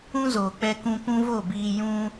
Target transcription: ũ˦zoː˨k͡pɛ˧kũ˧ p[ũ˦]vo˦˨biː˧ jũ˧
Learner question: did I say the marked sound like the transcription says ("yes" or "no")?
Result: yes